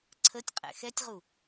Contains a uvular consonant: yes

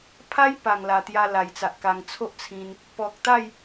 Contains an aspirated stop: yes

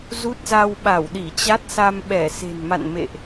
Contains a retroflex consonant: no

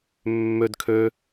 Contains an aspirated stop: yes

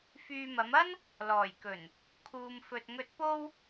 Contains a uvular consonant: no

